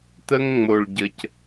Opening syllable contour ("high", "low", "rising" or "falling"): high